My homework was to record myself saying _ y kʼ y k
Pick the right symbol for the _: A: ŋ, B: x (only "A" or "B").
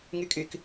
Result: A